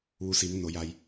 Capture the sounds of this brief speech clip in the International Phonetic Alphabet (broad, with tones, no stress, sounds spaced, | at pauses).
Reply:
ʋ u˩˧ s i˩˧ ŋ n o˩˧ j a˧ j